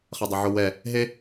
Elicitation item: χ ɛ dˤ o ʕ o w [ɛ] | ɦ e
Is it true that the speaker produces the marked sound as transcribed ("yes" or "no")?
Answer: yes